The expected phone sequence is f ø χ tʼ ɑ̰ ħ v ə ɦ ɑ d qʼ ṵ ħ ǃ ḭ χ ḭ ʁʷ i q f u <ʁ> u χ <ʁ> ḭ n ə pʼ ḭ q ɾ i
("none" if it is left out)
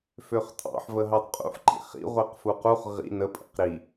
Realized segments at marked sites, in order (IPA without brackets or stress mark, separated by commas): q, ʁ